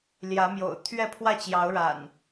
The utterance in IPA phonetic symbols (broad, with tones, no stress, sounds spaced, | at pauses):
l j ä˨˦ m j o̰˨˩ ʊ̯ t̪ʰ ɥ ɛ˥˨ pʰ w ä˥˨ t͡ɕ j ɑ˨˦ ʊ̯ ɻ a̰˨˩ n